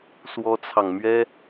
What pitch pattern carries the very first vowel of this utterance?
high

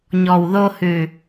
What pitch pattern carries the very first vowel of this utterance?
low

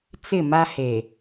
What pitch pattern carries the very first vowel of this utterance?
falling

